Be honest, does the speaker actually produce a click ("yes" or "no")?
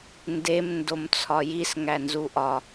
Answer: no